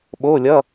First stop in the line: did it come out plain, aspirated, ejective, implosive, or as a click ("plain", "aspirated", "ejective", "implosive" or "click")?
implosive